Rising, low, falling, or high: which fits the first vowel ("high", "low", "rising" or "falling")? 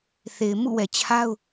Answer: low